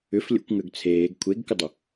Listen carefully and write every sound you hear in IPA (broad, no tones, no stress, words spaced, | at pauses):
ʏflʲo̰kʷŋøɡ t͡sʰeːɡ kʷʰeɡkʏdˤʊ